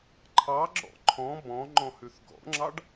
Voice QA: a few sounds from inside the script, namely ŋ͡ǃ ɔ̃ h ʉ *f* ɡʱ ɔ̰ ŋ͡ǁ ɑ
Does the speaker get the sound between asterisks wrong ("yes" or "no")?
yes